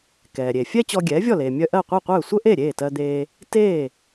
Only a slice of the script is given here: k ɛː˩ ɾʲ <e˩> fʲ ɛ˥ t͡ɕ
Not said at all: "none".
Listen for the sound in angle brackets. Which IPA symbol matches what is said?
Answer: e˩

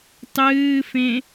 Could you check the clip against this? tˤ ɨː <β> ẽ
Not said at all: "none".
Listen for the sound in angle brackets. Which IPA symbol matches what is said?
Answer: f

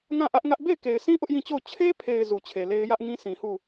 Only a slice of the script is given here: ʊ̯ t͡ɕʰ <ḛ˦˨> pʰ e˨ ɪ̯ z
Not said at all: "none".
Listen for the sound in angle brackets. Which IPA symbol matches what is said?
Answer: e˦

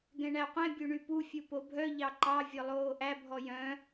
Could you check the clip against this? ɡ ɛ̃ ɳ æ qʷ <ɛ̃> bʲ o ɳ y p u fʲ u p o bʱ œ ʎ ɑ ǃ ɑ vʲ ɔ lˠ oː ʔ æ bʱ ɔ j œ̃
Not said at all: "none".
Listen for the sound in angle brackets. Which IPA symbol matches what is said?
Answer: ɛ̃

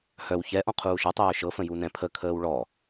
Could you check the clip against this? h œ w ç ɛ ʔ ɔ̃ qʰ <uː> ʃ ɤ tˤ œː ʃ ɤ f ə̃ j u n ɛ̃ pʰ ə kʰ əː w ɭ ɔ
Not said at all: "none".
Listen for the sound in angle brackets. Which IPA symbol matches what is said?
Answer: uː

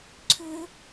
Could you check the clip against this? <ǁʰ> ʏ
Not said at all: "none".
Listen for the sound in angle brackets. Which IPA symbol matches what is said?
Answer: ǀʰ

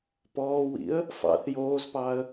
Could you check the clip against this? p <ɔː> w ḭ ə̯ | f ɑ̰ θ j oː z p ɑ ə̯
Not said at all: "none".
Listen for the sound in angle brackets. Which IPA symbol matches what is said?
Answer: ɔː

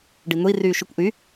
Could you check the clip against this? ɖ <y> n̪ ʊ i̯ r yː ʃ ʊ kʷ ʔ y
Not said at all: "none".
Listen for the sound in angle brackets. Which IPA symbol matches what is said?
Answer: i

